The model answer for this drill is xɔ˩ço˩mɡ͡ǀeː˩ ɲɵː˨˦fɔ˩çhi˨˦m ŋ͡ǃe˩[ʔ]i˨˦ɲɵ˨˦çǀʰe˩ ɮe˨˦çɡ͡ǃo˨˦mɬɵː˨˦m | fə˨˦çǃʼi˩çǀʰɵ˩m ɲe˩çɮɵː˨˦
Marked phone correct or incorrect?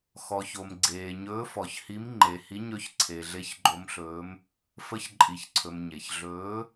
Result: incorrect